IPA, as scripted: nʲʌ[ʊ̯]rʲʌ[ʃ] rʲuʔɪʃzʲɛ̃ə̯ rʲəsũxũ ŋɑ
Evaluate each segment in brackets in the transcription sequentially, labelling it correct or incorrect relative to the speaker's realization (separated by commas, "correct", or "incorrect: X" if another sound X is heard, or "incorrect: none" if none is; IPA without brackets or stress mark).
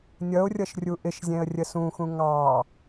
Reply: correct, correct